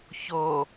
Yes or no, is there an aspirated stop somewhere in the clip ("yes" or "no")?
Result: no